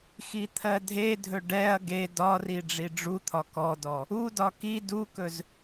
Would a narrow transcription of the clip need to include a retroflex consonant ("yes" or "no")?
yes